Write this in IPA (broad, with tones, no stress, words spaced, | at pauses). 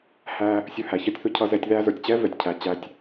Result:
hæ˧ | sʲʊ˧ hæ˨çʌ˧tʲθʊ˧ cʰʌ˧zɛ˧tʲ ðæ˧zə˞˨tʲt͡ɕɛ˦ vɛ˧tʲcʰæ˧t͡ɕæ˦tʲ